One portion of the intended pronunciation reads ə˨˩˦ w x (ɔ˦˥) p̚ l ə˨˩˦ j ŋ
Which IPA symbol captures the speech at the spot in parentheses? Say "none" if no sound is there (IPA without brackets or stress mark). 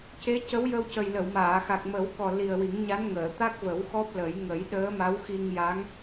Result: ɔ˦˥